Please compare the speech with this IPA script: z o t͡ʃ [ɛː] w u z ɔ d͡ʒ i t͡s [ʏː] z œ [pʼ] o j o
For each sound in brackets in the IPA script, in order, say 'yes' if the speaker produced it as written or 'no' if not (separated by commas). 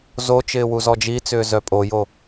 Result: no, yes, yes